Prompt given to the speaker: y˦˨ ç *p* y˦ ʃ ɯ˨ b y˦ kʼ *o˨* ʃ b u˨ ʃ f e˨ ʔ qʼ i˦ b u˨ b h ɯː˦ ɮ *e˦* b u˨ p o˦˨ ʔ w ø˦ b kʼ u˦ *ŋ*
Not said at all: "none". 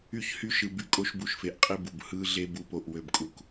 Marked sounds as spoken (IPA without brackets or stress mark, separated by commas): h, o˦, e˦, k